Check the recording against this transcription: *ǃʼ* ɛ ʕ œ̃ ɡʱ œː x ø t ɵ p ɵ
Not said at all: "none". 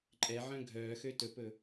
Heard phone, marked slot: ǃʼ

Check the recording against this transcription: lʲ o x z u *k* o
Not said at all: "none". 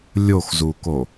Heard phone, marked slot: k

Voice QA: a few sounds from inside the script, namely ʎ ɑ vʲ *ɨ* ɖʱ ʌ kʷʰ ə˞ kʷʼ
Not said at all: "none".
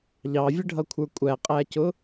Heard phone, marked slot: ə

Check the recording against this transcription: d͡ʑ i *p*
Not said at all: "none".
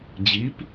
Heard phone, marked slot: p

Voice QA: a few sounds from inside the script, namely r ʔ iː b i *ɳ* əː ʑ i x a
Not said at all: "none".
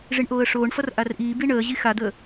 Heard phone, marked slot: ɳ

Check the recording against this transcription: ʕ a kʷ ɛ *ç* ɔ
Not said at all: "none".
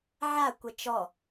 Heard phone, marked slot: t͡ʃ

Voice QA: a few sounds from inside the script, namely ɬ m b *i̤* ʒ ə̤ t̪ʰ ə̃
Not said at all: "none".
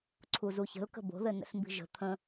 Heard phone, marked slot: i̤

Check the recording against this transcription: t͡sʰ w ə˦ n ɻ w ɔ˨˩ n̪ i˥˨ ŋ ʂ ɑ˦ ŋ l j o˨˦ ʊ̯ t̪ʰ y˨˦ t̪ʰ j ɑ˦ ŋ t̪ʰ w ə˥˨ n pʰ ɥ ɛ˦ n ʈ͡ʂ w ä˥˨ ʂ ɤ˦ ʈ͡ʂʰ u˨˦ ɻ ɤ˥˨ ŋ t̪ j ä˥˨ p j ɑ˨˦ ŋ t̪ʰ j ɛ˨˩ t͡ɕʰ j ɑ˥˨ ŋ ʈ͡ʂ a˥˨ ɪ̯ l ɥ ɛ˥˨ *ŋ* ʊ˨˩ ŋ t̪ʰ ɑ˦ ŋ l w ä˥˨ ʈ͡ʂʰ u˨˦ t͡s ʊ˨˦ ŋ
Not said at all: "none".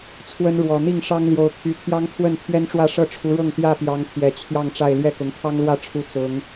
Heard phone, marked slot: k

